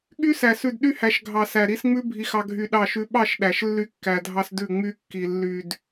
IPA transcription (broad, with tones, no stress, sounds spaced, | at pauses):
ɠ y˦ s æ˨ s ʉ˨ d ɗ y˦ h æ˨ ʃ ɡʱ ɑ˨ s æ˨ ɾ i˦ s ŋ͡m ʉ˦ bʱ i˦ x ɑ˦ ɡʱ y˦˨ ɗ ɑ˦˨ ʃ ʉ˦ ɓ ɑ˦˨ ʃ ɗ æ˨ ʃ lː y˦ kː æ˨ dʱ ɑ˦ s d ʉ˦˨ ŋ͡m y˦ kː i˨ lː y˨ d